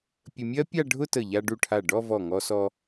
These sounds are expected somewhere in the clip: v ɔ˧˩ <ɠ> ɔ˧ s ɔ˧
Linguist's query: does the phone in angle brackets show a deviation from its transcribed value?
yes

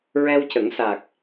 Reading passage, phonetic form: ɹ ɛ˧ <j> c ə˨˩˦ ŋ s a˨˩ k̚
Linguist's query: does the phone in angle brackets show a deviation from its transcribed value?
yes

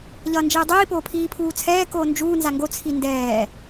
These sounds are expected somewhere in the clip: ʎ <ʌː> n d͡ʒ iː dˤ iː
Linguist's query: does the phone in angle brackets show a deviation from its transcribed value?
no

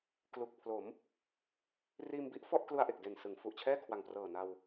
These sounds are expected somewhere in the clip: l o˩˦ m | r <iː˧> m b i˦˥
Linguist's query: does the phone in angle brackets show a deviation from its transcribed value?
no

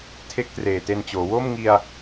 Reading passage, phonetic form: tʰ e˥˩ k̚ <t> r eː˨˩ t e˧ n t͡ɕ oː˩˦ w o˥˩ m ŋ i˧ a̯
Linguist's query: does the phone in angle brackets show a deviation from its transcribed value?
no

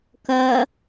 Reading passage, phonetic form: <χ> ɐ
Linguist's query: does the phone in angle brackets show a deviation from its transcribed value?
yes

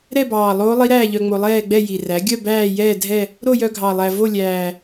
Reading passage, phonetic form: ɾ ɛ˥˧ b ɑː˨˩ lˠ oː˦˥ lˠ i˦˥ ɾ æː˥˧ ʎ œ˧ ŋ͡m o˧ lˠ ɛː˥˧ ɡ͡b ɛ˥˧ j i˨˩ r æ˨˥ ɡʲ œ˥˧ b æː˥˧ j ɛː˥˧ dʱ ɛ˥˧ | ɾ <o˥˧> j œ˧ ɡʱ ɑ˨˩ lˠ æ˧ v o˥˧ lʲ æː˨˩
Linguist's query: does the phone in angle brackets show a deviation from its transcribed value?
no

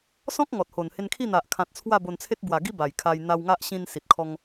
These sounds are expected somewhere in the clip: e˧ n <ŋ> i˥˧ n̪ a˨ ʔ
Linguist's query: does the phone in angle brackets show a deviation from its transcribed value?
yes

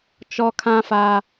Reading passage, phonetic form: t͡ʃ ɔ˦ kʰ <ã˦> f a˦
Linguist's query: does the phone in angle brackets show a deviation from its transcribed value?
no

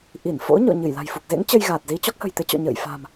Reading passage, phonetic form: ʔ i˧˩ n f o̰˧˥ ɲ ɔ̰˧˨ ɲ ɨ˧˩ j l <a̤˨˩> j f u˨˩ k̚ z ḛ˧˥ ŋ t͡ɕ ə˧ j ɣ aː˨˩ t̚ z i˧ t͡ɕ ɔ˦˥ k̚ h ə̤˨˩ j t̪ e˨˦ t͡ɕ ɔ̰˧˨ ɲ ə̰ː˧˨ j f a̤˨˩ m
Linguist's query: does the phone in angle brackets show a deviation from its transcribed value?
no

